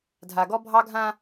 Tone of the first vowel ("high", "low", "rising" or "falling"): low